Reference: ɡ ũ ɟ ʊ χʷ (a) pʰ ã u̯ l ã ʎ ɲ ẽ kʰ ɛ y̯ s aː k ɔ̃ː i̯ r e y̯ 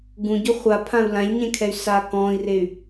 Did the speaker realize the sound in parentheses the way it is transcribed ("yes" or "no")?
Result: yes